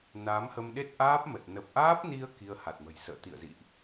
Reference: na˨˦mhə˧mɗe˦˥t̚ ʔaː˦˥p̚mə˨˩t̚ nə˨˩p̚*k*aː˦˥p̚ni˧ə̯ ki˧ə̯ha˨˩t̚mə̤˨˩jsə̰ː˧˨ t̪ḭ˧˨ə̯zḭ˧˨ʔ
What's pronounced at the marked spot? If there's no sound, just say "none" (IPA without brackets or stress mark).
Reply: ʔ